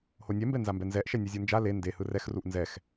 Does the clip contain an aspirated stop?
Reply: no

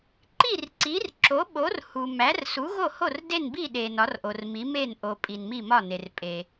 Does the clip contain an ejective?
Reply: yes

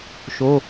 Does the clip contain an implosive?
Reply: no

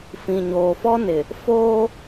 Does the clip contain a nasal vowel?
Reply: yes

